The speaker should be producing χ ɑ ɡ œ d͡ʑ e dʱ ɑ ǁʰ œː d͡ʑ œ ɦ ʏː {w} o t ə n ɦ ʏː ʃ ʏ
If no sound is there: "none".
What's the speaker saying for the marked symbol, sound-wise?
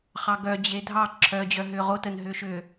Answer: ʁ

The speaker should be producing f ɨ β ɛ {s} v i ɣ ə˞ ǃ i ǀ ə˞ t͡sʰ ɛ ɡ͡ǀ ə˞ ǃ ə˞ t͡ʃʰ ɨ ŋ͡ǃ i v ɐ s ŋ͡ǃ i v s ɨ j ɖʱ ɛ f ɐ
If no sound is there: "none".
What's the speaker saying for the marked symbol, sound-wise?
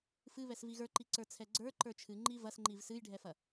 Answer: s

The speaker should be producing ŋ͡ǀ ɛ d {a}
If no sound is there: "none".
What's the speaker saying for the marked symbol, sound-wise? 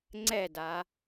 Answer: a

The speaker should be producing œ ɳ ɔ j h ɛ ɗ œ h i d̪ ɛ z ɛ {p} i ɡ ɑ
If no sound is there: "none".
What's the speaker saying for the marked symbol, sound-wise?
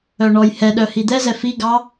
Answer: f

